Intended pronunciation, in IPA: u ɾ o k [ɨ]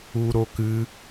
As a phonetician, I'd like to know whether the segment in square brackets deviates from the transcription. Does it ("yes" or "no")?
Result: no